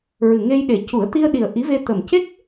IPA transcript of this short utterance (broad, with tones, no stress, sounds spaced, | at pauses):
ɹ ɨ˨˩ ŋ e˧ j ɗ e˨˩ c u˨˩˦ ə̯ t̪ i˧ ə̯ ɗ i˨˩ ə̯ ʔ i˧˥ v e˧ t̪ ə˨˩ m c e˦˥ k̚